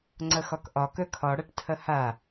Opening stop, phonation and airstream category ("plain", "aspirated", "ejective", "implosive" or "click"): click